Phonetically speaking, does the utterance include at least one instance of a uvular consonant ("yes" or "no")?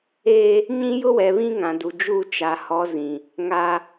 no